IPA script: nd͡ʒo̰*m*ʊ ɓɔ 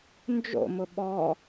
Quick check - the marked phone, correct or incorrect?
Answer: correct